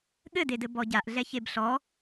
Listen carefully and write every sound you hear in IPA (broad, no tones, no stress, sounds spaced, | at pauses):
ɠ ɘ d e d ɘ b ɔ ɟ a ʔ ɮ ɛ ç e b ɬ ɔ